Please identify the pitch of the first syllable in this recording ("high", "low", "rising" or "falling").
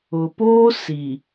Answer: low